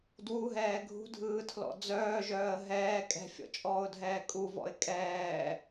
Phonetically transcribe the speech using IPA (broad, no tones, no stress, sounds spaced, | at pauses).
d w u ɦ ɛː ɡʱ ṳ dʱ ɯː tʰ l ɔ̰ d͡z œː ʒ œː ə̯ ɦ ɛː kʼ ɛ̤ fʲ ɔ̰ t͡ʃʼ ɔː ʊ̯ dʱ ɛː kʼ u v ɔ̰ ɪ̯ kʼ ɛː